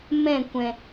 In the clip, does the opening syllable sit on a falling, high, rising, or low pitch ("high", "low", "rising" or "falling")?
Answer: falling